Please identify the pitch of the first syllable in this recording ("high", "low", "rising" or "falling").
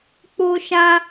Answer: high